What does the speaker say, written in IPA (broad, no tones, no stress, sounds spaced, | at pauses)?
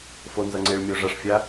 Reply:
f o n z ʌ ŋ͡ǀ e ɭ mʲ o ʐ ʌ ʂ fʲ a